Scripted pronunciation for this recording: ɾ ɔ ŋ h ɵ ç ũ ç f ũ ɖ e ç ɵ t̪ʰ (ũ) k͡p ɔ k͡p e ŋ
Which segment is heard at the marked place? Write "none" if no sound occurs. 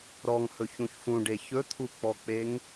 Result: u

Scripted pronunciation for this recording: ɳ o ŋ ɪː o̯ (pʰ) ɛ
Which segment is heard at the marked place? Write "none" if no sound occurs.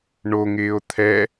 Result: t̪ʰ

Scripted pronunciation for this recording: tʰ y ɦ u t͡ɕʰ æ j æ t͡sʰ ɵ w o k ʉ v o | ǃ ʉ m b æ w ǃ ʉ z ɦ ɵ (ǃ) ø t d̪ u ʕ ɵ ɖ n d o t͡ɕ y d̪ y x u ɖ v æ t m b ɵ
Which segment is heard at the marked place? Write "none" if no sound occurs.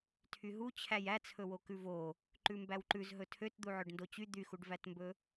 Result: tʰ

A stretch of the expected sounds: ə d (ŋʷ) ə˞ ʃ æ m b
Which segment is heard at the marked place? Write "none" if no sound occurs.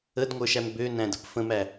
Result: ŋʷ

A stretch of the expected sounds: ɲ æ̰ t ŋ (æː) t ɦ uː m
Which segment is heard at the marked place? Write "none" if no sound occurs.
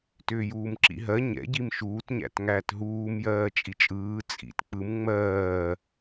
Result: æː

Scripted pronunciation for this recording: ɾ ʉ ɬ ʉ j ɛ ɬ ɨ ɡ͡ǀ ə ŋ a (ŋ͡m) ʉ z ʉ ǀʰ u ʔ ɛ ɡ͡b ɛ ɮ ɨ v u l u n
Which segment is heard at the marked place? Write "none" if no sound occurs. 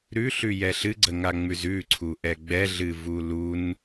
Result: ŋ͡m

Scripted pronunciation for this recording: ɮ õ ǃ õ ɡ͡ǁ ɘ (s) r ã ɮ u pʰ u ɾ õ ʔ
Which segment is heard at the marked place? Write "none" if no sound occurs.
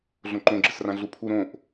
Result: s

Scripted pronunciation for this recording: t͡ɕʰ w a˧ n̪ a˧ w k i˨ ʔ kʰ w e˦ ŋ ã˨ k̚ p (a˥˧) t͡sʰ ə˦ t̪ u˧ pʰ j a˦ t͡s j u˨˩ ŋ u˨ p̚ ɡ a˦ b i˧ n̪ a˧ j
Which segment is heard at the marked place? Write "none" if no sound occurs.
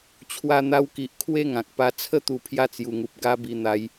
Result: a˧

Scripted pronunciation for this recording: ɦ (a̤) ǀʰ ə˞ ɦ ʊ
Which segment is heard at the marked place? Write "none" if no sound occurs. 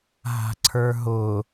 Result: a̤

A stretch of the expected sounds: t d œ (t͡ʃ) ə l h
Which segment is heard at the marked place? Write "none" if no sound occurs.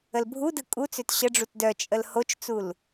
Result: t͡ʃʼ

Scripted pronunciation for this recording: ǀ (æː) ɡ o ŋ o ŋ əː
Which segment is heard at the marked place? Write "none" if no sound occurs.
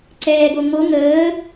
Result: ɛː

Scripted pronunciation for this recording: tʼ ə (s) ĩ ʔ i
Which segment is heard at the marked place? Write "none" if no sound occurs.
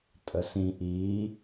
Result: s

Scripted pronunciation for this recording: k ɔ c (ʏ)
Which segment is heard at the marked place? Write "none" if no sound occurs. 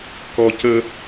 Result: ə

